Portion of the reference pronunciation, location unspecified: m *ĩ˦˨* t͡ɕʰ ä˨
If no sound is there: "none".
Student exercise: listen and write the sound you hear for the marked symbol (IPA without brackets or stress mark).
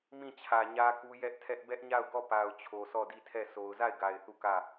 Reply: ĩ˦˨